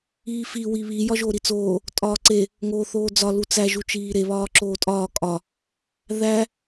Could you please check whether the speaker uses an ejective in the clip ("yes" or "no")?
yes